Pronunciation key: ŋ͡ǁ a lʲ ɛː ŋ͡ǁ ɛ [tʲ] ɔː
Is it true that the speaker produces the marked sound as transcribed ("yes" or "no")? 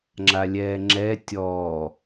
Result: yes